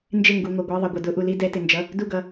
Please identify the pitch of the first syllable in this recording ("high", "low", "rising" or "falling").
falling